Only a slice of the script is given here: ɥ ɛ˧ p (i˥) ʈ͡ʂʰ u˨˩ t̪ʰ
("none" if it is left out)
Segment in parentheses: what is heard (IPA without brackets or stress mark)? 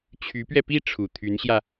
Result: i˥˩